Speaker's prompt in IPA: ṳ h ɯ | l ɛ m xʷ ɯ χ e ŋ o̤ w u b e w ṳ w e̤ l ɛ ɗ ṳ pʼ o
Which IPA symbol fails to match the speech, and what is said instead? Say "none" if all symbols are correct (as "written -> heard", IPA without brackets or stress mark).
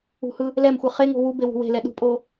none